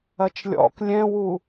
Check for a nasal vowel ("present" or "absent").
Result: present